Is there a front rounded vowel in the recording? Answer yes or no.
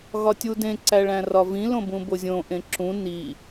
no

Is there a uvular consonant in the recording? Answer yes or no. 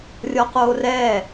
yes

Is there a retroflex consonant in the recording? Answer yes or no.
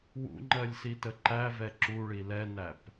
yes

